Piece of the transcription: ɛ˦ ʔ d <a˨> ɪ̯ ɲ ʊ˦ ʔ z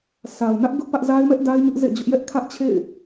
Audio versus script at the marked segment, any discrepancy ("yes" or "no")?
yes